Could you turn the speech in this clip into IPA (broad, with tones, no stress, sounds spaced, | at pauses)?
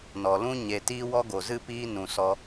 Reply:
n ɔ˨ l ũ˦ ɲ e˨ t iː˦ w ɔ˦ ɡ o˨ z ɨ˦ p iː˦ n ũ˨ s ɔ˧